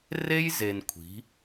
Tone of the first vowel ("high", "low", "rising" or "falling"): high